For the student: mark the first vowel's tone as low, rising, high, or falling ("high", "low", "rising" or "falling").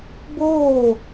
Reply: falling